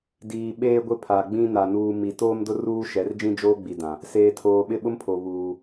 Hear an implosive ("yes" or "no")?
yes